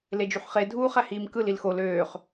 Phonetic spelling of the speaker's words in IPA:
l e d͡ʒ y ħ χ e dʱ uː χ æ h iː m k ɯ l i l x o l øː χ

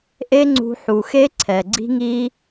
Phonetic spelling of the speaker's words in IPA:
ʔ e˦ ŋ͡ǀ ṳ˧ ħ u˨ x e˦ ǀʰ ɛ˨ ɡ͡ǀ i̤˦ ŋ i˦

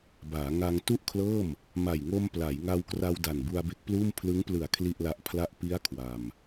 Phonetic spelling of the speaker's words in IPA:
b aː˩˦ ŋ a˧ ŋ t u˥˩ ʔ kʰ l ɤː˥˩ m | m a˨˩ j ŋ o˧ m p l a˩˦ j ŋ a˧ w k r a˧ w d a˨˩ n b u˧ a̯ b e˦˥ k̚ p l uː˥˩ m pʰ l ɯ˦˥ ŋ p l ɯ˨˩ a̯ kʰ l i˥˩ ʔ l a˦˥ ʔ pʰ l a˥˩ ʔ p i˦˥ a̯ kʰ w a˧ m

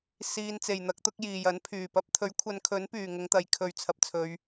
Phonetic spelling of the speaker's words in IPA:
s iː˧ n t͡s e˨ j n̪ ɐ˨˥ k̚ t̪ ʊ˨˥ k̚ j iː˨ j ɐ˨˥ n pʰ yː˨˩ p ɐ˧ p̚ t̪ʰ ɵ˨˥ ɥ kʷʰ ɐ˨˧ n kʰ ɵ˨˥ n p yː˨˩ ŋ ʊ˨˧ ŋ t̪ ɐ˨ j kʰ ɵ˨ ɥ t͡sʰ ɐ˨ p̚ t͡sʰ ɵ˨˧ ɥ

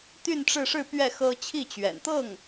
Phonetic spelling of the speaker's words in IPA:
t̪ y˥˧ n ʈ͡ʂ ɻ̩˥˧ ʂ ɻ̩˥˧ p ɥ ɛ˥˩ x ɤ˥ t͡ɕʰ i˥˩ t͡ɕ ɥ ɛ̰˨˩ n t̪ ɤ˥˩ ŋ

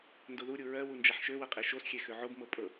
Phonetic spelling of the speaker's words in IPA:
n d o ð u ɾʲ u ɹ ɜ w u n d͡ʒ a ħ ʃ ø w ɤ qʼ e ʃ o s xʲ e x ø ʕ o b m ɤ pʼ ɤ

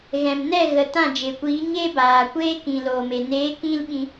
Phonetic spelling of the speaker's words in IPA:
ɣ ɛ̃˨ m n ɛ˦˨ ɣ ə˨ t ã˦˨ d͡ʒ e˨ kʷ iː˨˦ ɲ e˦ b aː˨ kʷ eː˦ k ĩ˨ l oː˨ m e˨ n eː˨˦ k ĩ˧ l ɓ ĩ˧

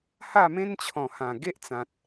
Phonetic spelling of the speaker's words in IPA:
h a˥˧ m ẽ˦ n t͡ɕʰ ɔ̃˨˩ h ã˨˩ ɡ e˦ ʔ t͡s ã˨ t̚

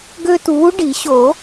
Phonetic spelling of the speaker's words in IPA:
ɡ ø˦ t uː˨˥ ɖ i˨˩˦ ɕ o˨˩˦

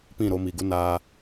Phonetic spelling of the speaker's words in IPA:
p ĩ˦˨ ɾ o˧ m i˨ ɡ u˦ n aː˧

